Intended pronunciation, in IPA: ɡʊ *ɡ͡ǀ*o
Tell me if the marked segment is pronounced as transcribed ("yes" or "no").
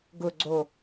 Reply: yes